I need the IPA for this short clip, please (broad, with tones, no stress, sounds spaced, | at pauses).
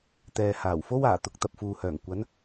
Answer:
t̪ ɛː˨ h aː˨˩ w f o˥ w aː˨˩ t̪ ʊ˧ k̚ t̪ ɐ˨ p̚ f uː˨ h œː˨˩ ŋ kʷ ɐ˨˧ n